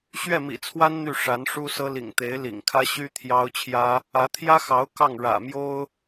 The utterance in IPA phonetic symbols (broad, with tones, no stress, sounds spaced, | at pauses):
ɕ ɥ ɛ˥˩ m ḭ˨˩ t͡sʰ w a˥ n n̪ y˥˩ ʂ a˧˥ n ʂ u˥ s ɤ˥ l ḭ˨˩ ŋ t̪ e˧˥ ɪ̯ l ḭ˨˩ ŋ kʰ ä˥ ɕ y˥ t̪ʰ j ɑ˥ ʊ̯ t͡ɕʰ j ä˥ | ä˧˥ t̪ʰ j ä˥ x ɑ˧˥ ʊ̯ k ɑ˥˩ ŋ ɻ ä̰˨˩ m j o˥ ʊ̯